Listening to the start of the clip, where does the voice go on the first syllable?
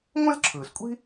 high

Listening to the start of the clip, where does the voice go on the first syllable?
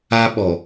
high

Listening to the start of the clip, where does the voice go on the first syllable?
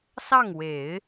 falling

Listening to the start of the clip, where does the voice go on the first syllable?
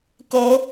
rising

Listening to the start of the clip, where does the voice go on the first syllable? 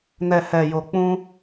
low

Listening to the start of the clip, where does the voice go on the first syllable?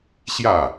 falling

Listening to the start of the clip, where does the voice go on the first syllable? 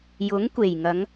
rising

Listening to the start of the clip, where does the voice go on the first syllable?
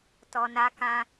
low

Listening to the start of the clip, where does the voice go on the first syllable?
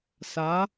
rising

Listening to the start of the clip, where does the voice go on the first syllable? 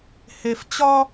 low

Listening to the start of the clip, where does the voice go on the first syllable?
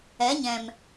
rising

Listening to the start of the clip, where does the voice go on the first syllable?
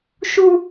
high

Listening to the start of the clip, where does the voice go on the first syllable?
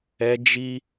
high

